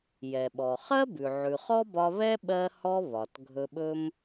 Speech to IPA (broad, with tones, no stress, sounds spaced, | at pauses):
j ɛ˩ ɓ ɔ˩ χ ɜ˥ b ʉ˩ ʕ ʉ˩ χ ɔ˥ b ɒ˧ β ɛ˥ ɓ ɜ˧ h ɔ˧ β ɒ˩ t ɡʱ ɵ˧ ɓ ɵ˥ m